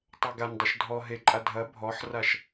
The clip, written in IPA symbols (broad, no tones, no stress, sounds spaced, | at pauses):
tˤ ɛ ɡ a n dˤ o ʃ dʱ ɔ ɦ e ǃʼ a dʱ ɐ bʱ ɔ ħ r a ʃ